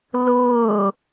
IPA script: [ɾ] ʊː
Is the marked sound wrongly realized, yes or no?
yes